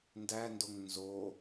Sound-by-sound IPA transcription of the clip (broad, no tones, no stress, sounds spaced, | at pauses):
n d æ n d o ŋ n z o